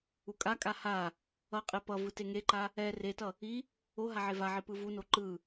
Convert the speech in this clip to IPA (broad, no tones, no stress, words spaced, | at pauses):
ukʼakʼa ha | ʌqʼe pʌ vɯteŋeǃa | ɛ retʌ | i | o ɦaʕevaʕi pɯvuno ǃɯ